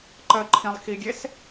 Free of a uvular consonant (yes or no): yes